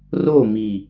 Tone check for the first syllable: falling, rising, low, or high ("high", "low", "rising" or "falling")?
falling